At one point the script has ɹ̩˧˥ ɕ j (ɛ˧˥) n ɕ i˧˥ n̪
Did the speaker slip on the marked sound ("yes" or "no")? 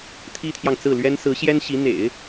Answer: yes